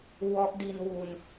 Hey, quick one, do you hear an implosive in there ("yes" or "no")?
no